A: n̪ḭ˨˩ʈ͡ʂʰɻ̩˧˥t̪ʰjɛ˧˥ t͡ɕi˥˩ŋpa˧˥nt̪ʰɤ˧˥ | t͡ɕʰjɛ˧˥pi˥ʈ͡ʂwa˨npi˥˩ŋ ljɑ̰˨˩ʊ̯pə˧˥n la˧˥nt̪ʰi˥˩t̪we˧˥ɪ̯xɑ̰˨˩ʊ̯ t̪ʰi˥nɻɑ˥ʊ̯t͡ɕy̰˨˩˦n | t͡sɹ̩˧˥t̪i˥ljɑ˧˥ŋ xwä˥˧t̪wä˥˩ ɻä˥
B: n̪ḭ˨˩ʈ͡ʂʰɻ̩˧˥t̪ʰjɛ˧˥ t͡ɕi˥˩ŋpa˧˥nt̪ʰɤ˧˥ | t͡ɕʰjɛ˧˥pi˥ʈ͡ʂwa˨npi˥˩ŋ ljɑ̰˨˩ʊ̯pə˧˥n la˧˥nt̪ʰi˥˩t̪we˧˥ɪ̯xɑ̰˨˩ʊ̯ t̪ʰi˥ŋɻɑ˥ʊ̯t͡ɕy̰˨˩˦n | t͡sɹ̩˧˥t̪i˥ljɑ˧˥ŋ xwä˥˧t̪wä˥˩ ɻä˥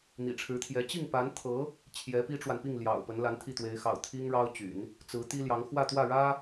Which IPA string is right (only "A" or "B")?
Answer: B